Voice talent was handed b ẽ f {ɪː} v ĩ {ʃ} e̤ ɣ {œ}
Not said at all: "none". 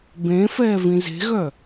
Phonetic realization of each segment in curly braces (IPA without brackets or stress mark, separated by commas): ɛː, z, œ